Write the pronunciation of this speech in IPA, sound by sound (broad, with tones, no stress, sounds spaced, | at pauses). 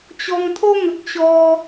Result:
t͡ɕ ɔ˧ ŋ t̪ʰ o˦ ŋ ə˨ k̚ ɕ ɔ˧